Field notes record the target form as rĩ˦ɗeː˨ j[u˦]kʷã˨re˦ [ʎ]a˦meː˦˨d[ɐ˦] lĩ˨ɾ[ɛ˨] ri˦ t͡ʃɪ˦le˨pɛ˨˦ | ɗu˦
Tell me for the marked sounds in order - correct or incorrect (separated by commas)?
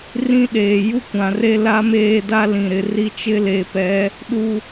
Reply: correct, incorrect, incorrect, incorrect